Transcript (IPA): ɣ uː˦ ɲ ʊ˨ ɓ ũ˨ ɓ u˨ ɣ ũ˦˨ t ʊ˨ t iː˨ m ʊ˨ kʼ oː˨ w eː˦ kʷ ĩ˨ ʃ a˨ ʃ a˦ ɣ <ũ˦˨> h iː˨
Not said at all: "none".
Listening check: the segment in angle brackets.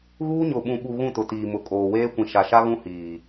ũ˦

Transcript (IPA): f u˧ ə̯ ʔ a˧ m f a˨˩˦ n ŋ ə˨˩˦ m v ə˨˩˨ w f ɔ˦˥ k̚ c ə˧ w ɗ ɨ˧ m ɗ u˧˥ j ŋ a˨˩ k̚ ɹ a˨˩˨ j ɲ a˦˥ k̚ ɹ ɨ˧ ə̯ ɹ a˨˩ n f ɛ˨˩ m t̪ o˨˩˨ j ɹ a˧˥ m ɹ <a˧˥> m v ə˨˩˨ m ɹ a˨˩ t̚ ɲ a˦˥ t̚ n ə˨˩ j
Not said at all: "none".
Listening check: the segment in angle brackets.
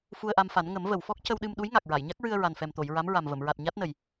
a˨˩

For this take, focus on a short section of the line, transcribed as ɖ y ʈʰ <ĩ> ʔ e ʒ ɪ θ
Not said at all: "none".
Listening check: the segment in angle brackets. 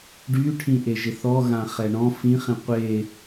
ĩ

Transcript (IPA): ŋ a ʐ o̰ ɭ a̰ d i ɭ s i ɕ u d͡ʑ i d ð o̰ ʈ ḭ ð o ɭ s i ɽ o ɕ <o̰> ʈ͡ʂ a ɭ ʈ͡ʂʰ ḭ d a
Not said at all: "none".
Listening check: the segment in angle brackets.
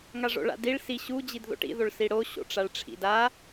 o̰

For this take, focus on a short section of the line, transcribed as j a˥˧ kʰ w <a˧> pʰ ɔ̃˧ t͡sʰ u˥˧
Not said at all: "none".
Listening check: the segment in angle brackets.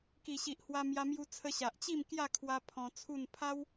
a˧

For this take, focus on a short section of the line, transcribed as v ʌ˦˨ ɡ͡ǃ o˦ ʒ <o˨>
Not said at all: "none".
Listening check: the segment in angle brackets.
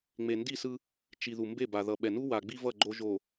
o˨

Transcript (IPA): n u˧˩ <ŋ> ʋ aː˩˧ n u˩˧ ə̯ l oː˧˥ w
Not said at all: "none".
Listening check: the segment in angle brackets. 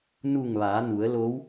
ŋ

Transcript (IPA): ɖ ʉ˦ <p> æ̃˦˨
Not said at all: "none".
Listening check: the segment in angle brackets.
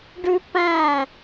p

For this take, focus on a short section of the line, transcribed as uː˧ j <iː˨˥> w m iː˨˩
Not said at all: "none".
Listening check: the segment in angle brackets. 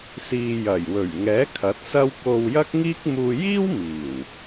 iː˥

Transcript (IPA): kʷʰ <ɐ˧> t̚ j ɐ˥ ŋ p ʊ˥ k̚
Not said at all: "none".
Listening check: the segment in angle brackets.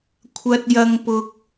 ɐ˥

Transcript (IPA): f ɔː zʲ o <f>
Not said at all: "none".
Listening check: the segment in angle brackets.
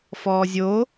none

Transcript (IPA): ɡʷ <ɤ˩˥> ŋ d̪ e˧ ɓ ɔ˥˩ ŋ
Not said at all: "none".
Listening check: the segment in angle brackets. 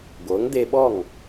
ɤ˩˥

